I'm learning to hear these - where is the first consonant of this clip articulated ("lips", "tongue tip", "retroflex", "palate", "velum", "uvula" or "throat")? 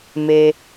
lips